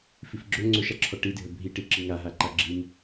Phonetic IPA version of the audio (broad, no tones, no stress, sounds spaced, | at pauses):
f i f ɡ͡ǁ ɵ ŋ͡ǀ ɵ ʃ a ǁʰ ɔ ʈ i dʱ ə bʱ i ʈ i ǁ i ŋ a ɦ a ǃ a ɡ͡ǁ i m